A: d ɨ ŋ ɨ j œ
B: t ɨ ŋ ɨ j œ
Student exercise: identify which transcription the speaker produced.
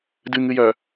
A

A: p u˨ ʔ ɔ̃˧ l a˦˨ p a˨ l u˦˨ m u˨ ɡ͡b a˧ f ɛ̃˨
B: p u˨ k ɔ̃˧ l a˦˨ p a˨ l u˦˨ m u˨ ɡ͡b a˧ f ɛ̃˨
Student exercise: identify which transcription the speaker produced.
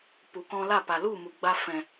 B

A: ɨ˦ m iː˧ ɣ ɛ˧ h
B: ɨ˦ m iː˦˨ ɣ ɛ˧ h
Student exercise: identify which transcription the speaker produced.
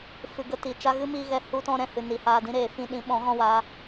A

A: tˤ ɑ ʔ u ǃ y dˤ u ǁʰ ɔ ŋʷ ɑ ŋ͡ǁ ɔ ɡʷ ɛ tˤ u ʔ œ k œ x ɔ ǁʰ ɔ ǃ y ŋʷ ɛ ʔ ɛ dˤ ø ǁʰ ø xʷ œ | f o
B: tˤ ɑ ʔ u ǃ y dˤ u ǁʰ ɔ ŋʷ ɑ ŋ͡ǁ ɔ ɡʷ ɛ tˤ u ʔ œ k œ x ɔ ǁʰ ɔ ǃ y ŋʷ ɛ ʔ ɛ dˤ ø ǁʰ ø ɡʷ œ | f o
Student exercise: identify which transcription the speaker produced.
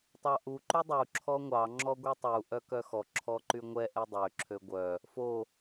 B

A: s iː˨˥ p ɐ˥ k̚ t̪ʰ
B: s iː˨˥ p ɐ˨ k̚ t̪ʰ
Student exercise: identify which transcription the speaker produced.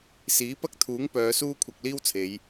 A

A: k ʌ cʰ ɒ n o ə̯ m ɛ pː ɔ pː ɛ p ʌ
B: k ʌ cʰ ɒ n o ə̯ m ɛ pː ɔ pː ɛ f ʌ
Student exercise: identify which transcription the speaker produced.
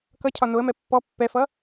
B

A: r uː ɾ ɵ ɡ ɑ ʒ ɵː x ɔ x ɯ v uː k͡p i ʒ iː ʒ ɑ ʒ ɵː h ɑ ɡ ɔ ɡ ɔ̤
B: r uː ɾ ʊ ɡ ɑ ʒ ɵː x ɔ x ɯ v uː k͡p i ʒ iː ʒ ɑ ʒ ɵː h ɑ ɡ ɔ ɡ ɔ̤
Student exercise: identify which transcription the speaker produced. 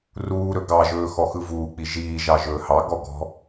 A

